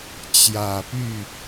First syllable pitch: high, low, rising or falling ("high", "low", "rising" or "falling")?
low